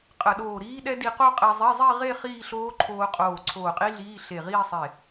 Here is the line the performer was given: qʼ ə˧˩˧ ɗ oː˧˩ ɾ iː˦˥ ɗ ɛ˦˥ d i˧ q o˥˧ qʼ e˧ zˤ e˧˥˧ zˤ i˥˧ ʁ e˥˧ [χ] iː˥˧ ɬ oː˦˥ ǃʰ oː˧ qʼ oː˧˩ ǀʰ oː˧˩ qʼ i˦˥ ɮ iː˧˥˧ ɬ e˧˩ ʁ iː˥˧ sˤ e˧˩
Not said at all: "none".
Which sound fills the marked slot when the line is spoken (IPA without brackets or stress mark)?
χ